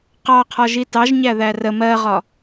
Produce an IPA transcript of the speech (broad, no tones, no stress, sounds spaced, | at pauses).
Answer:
q ɑ qʰ ɒ ʒ i t ɑ ʒ ɲ æ ð æ r ə m ɜ ʁ ɒ